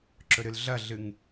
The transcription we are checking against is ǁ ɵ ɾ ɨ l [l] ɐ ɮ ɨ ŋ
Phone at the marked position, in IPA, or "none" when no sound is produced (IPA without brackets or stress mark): ɮ